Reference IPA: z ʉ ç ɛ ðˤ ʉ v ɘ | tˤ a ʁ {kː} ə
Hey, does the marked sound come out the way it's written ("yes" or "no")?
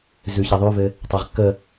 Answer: yes